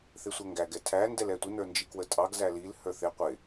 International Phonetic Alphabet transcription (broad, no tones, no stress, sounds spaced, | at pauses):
θ ɪ sʷ ɛ ŋ ɡ æ ɡ ɛ tʰ æ n d ɛ l ɛ tʷ ɪ n ə˞ n d͡ʒ i k w ə tʼ ɑ ɡ z æ l i l h ə˞ θ ɪ qʷ ɪ